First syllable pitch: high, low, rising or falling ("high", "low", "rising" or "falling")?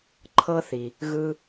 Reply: high